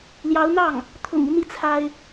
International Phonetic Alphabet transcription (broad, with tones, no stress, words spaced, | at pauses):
ljɑ˧˥ʊ̯n̪ɑ˥˩ŋ | t̪ʰʊ̰˨˩ŋi˦ n̪i˥˩t͡sʰa˥ɪ̯